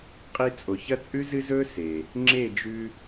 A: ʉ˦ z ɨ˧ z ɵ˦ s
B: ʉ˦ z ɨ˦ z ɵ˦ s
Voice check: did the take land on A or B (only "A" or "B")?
B